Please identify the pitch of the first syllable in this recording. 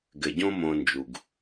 low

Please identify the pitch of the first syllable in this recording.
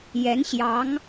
rising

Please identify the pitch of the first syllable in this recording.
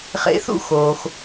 rising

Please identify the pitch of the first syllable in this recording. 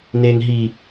high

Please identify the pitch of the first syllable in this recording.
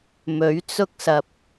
rising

